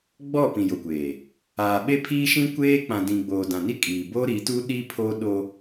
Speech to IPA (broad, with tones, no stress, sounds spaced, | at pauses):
ɡ͡b ɔ˦˨ p ĩ˨ j o˨ kʷ eː˨ | aː˨ ɓ e˦ pʰ iː˦ ʃ ĩ˦ kʷ eː˦ k͡p ã˨ d ĩ˨ ɡ͡b oː˨ d ã˨ n i˦ kʼ iː˨ b o˦ ɾ i˨˦ t u˦ ɗ i˦ pʰ o˦ ɗ o˦